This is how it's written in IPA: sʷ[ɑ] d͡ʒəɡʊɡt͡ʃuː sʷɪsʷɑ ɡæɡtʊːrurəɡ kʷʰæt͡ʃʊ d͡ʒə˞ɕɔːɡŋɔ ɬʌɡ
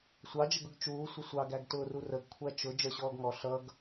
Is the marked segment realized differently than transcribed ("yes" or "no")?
no